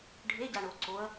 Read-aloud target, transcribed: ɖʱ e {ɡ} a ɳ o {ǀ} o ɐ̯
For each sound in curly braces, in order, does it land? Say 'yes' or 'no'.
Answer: no, yes

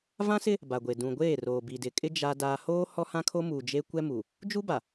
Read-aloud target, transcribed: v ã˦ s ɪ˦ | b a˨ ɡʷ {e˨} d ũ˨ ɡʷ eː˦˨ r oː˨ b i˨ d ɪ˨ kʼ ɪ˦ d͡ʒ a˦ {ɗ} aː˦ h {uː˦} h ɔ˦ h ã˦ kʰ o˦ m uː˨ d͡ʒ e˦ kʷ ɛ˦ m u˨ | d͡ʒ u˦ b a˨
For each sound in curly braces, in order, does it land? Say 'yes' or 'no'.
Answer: yes, no, no

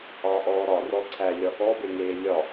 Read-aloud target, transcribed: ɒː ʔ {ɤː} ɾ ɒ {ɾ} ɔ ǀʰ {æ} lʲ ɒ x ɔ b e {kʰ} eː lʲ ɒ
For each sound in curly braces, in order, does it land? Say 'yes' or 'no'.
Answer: no, no, yes, no

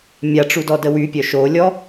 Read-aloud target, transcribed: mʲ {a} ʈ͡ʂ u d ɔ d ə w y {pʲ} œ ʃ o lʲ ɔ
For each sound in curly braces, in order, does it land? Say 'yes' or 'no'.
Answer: yes, yes

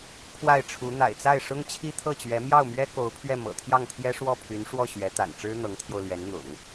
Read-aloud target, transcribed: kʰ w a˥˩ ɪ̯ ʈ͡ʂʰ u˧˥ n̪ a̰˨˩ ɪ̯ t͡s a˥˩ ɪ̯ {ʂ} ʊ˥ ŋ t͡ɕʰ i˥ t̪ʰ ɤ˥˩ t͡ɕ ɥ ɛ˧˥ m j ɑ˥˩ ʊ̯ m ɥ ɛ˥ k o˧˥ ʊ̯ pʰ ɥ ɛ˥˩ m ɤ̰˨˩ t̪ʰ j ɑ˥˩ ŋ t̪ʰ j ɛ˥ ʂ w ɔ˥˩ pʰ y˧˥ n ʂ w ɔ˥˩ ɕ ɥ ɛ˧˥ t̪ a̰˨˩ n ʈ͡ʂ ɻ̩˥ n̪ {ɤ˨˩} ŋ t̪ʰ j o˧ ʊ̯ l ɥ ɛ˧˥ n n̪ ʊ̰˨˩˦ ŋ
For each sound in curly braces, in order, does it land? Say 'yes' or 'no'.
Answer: yes, no

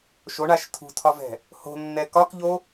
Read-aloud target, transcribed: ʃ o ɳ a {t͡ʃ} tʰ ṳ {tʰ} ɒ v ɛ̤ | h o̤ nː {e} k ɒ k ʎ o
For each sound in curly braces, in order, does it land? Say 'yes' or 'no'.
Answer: no, yes, no

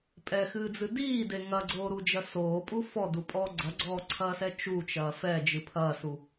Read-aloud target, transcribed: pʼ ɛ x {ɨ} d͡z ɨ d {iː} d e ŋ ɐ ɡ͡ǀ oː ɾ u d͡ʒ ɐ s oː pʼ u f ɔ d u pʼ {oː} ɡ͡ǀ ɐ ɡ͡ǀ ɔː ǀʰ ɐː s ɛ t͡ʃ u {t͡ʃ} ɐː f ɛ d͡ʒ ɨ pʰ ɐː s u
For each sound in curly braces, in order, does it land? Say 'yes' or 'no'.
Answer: no, yes, no, yes

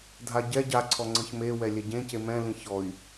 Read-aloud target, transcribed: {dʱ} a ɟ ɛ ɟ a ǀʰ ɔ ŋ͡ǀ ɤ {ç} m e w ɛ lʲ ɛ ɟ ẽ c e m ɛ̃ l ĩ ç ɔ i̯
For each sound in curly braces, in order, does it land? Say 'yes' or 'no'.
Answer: yes, yes

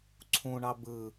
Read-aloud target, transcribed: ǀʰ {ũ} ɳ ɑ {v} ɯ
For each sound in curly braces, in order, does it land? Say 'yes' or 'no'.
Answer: yes, no

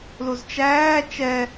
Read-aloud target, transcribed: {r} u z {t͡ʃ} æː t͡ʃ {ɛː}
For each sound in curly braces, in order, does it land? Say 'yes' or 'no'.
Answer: no, yes, no

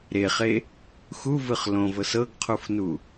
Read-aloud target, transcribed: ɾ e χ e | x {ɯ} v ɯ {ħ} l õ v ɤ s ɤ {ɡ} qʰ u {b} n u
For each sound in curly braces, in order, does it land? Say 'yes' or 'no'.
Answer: no, no, yes, no

